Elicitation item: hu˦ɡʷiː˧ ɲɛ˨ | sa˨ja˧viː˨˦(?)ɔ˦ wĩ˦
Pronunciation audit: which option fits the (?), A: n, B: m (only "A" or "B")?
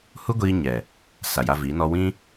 A